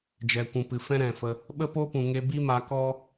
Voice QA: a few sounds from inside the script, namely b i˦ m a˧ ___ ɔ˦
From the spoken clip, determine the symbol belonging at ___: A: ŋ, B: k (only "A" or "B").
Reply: B